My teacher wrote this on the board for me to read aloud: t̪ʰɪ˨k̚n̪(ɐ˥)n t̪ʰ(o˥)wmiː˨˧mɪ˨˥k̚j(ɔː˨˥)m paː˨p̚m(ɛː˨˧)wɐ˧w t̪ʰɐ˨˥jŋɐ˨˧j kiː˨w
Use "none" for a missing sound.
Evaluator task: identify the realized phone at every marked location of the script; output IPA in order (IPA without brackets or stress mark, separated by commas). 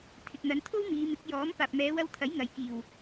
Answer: ɐ˨˧, o˥, ɔː˨˥, ɛː˨˧